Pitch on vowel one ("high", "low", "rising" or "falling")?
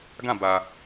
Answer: falling